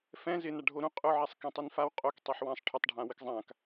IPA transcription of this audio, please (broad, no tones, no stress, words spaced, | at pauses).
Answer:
fɛ̃ zɪna ɖʱoɾũ qʼʊʕɛsˤ kẽtˤinfaw qʼok tˤiħwãsˤ ʈʰʊtˤɖʱã wɪkzˤãk